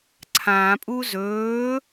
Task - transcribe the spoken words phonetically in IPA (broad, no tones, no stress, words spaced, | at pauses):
ǀʰãpʼu zɵː